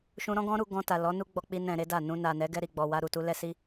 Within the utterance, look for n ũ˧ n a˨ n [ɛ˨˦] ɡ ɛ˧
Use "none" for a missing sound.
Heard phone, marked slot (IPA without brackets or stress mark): ɛ˨˦